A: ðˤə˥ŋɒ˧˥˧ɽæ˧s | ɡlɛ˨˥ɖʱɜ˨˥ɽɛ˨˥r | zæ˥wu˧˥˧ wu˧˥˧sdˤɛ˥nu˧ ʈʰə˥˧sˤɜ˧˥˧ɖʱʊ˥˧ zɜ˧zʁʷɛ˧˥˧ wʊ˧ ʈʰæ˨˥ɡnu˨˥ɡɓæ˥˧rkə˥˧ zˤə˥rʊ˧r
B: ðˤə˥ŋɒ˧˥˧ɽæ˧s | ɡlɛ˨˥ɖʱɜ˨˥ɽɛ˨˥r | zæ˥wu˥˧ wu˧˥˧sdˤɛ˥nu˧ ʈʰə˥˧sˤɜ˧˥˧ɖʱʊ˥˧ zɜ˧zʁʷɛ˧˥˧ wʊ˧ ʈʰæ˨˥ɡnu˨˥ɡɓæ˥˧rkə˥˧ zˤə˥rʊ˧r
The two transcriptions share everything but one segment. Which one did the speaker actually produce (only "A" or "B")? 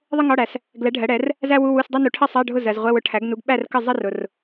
A